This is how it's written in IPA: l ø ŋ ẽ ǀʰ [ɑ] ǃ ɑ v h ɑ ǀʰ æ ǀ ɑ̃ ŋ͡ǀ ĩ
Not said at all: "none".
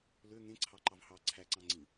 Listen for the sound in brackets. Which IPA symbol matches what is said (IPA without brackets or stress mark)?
ɑ